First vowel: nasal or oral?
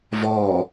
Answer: oral